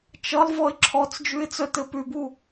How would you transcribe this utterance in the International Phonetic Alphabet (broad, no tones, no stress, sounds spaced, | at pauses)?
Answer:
t͡ʃ ʌ lˠ v ɔ ɪ̯ ǁʰ ɔ t͡s d͡ʒ ʉ ɪ̯ t͡s œ t ɘ p ʉ b u